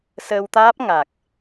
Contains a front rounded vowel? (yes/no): no